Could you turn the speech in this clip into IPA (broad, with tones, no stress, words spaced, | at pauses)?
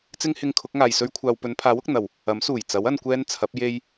t͡sɪ˥ŋhɪ˧ŋ kʰʊ˨˥k̚ŋaː˨jsɵ˥ɥkʷʰaː˧w pɵ˨˧npʰaː˨˥w ʊ˨k̚n̪ɐ˨˩w | ɐ˨˥msuː˨˩j t͡sɐ˨˥w ɐ˧n kʷɛː˥n t͡sʰɐ˨˥p̚ je˥j